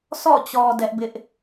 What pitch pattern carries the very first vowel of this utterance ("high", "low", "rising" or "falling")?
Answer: falling